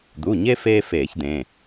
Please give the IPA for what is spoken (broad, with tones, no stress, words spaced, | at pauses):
d̪u˩˧˩ɲe˦ feː˦ feː˧˩˧çd̪ẽː˩˧˩